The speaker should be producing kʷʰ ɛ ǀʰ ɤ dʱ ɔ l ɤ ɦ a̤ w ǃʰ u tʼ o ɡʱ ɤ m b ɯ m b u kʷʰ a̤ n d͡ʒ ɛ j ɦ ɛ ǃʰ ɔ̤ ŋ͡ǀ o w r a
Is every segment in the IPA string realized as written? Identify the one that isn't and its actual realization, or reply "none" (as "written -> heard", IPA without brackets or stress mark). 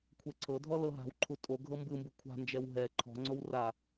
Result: j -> w